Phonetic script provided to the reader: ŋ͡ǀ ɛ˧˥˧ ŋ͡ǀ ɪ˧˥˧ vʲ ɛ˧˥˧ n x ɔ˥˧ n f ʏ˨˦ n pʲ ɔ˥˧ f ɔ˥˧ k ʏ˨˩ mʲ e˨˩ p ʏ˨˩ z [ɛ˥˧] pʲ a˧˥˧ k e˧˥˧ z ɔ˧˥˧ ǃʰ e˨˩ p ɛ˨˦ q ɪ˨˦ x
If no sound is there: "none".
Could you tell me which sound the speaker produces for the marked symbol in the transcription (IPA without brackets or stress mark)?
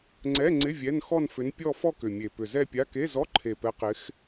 ɛ˥˧